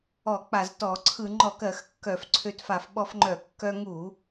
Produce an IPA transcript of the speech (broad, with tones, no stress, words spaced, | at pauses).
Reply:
ɔ˧˩˧k͡pa˧˩˧ztɔ˧˩˧ ǀʰɯ˧˩˧ŋ͡ǃɔ˧˩˧kɜ˧˩˧x kːœ˧˩˧fǀʰø˧t fa˧˩˧fɓɔ˧fŋ͡ǃœ˧˩˧ kːœ˧ŋu˧˩˧